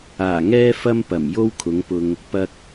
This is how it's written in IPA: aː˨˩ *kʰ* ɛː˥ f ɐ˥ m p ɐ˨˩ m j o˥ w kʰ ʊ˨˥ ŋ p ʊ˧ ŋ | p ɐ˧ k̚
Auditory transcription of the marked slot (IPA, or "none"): ŋ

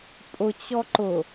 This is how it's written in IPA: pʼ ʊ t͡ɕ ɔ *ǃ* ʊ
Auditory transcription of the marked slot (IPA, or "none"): ǃ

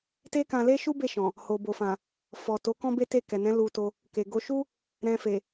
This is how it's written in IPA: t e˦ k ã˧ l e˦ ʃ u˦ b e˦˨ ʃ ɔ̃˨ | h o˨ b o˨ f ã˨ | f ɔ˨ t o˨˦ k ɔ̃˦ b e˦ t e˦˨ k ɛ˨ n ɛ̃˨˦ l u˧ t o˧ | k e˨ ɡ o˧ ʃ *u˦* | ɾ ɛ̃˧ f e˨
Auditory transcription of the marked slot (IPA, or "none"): u˦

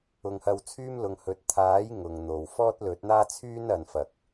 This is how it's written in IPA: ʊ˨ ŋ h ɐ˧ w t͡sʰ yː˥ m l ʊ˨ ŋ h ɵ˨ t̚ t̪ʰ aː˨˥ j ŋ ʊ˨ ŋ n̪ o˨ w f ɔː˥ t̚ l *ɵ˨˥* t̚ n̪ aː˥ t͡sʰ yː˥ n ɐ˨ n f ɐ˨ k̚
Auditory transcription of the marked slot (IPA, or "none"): ɵ˨˥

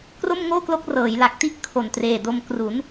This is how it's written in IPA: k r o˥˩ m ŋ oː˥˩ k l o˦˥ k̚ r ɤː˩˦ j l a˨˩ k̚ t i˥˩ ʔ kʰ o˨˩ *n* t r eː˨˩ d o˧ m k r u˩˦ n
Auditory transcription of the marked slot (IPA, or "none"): n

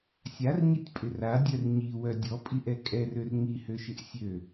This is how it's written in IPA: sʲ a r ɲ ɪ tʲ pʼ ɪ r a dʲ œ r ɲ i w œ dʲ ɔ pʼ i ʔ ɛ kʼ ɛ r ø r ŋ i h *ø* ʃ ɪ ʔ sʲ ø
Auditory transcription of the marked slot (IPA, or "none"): ø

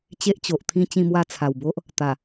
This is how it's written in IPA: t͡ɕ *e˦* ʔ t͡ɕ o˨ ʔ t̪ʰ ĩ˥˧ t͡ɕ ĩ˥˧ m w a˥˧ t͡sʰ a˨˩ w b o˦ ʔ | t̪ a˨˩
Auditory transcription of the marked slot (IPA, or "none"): e˦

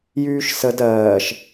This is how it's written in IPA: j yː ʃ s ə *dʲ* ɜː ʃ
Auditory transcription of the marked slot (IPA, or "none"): d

